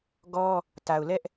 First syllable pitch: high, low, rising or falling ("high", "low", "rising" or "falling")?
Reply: high